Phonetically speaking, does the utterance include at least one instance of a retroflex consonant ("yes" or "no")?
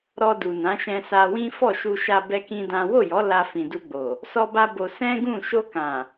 no